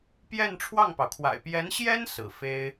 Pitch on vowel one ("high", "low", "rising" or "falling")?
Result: falling